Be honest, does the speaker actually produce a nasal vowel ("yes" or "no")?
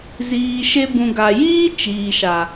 yes